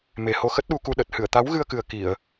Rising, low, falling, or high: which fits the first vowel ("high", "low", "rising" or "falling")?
low